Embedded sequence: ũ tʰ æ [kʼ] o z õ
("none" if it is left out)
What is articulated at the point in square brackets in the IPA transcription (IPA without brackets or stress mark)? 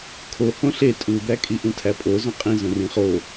pʼ